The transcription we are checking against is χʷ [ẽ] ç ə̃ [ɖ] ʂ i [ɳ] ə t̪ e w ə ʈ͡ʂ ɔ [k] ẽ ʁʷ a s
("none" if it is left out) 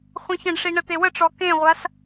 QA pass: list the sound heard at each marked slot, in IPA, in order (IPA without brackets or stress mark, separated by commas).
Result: ẽ, ɖ, ɳ, k